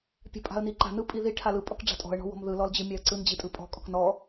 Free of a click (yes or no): no